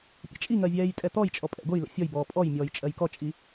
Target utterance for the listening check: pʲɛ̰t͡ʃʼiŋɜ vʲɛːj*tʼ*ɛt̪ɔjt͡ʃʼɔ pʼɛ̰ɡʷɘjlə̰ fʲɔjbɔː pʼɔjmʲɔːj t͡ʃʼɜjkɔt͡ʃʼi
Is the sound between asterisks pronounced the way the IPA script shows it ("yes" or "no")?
yes